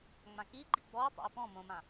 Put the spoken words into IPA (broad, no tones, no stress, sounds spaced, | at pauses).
ŋ͡m ã k i ɡ͡ǃ i ɡ͡b ɔ ʊ̯ tˤ a̰ ɪ̯ p ɔ̃ m õ m ã